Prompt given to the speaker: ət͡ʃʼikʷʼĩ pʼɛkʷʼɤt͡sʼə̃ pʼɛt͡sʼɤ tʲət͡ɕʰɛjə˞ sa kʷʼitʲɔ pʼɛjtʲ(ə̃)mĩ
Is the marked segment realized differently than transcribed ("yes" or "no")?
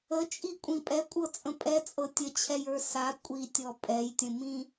no